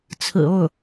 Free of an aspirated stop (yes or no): no